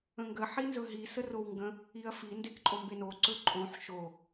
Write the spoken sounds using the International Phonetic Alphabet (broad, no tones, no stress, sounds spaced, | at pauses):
ə̃ ŋ ɡ ə ħ i n z ɵ ɦ i s ə r o w ŋ ɡ ə̃ | i ɐ̯ f i n d e k ǃʼ o m b e n o ǀ ɵ ǃʼ õ ħ ʃ o